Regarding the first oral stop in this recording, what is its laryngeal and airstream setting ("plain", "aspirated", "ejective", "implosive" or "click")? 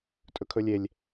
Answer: ejective